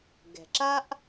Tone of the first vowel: low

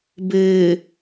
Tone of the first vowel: low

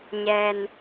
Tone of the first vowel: low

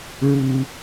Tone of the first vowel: high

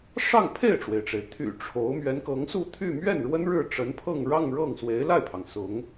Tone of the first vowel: falling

